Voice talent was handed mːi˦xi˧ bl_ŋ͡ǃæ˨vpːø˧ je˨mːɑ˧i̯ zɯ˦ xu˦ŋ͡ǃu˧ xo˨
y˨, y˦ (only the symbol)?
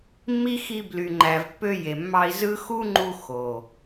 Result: y˨